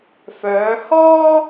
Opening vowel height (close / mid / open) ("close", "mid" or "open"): mid